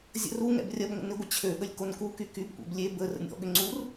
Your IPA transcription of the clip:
zʲə̰r u ŋɛ̰brʲɐbŋʷə̰ nɪɡʷɪ t͡ɕʰøɠəlʲ konkuky kybkʷɛ̰b lʲe bərə̰nʲ ɔ̰ɠʏ ŋ͡ǀur

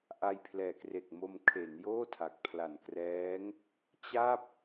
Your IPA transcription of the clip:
ʔa˧jpʰlɛː˨˩kre˨˩k̚ mo˧m kʰe˩˦njoː˥˩tʰa˨˩k̚ pʰla˨˩nkrɛː˦˥ŋ | t͡ɕa˥˩p̚

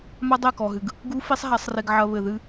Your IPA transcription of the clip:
ma˦dˤe˦˨kɔ˨ɦɨ˨ɡ | ɡu˦ fi˦sˤɦa˨˦sˤre˧ɡ ʕɐ˧ βɘ˨ðɨ˦

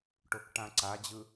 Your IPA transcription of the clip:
ʈokʈãǀad͡ʑɯ

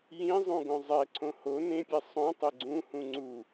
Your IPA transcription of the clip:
jĩzˤũ ɡõzˤɛǀʰõ ho nẽpʲɛ sˤõ tˤeɡ͡ǀũ hũŋ͡ǀu

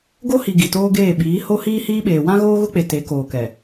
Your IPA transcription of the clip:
ɡo˦hi˨ ɡi˨toː˦ɡeː˦˨ ɓiː˨˦ho˦ hiː˦hiː˦ɓeː˨ wã˦ɣoː˦ɣʊ˦k͡pe˨ te˨˦koː˨kɛ˨

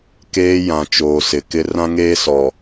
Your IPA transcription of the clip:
keː˦jã˨ t͡ʃoː˨sɪ˨kɪ˦ rã˦ŋeː˦sɔ˨

